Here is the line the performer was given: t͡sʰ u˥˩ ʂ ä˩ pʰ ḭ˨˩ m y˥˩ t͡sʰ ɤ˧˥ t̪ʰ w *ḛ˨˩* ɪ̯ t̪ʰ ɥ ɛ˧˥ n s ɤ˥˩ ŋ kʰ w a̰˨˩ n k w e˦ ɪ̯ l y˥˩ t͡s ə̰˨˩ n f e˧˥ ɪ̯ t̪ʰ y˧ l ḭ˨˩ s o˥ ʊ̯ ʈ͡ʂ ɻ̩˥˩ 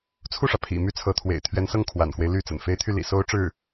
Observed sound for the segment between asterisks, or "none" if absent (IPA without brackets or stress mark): ḛ˨˩